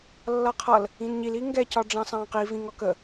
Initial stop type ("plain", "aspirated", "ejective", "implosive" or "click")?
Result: aspirated